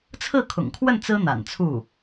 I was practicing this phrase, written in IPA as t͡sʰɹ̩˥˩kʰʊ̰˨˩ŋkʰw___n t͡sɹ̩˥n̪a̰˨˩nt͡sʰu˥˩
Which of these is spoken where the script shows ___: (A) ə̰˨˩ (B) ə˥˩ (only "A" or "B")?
B